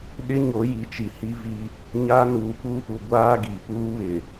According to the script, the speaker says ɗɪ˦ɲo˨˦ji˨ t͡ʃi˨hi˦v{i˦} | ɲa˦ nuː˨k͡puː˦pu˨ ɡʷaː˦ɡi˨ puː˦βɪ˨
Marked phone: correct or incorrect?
correct